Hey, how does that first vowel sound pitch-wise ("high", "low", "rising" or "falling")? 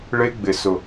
high